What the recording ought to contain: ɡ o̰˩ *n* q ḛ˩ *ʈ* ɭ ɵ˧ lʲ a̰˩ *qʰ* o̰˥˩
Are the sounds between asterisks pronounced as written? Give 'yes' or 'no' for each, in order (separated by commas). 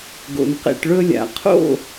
yes, yes, yes